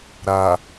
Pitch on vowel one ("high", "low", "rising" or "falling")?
low